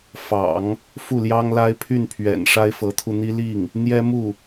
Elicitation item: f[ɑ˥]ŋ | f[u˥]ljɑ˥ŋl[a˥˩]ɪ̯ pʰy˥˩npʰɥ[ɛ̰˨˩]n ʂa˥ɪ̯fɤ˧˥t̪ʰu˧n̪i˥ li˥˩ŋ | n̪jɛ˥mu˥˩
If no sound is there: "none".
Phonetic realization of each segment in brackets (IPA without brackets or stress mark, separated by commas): ɑ̰˨˩˦, u˥˩, a˥, ɛ̰˨˩